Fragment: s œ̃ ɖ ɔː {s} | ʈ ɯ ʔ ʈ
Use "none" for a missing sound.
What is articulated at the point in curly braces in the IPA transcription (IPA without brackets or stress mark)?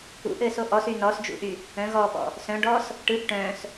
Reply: s